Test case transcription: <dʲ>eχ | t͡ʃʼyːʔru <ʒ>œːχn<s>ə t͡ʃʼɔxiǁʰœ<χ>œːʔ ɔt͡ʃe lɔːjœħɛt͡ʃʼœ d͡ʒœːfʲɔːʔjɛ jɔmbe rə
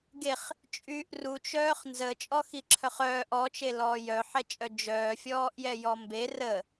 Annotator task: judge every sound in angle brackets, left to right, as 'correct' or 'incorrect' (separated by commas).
incorrect, incorrect, incorrect, correct